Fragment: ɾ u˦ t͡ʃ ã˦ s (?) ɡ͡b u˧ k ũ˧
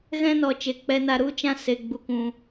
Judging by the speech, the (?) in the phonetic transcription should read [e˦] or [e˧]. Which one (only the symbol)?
e˧